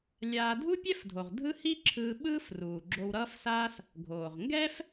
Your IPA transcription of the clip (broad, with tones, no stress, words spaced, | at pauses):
lʲaː˧ dʱu˥pʲɛ˥fdʱo˩ʁ dʱɯ˥ hi˥ǁʰɯː˧ ɓɯː˥fruː˩ ɡ͡ǁo˧wɾʌː˥fsaː˥s | ɡʱoː˩ʁŋɡɛː˥f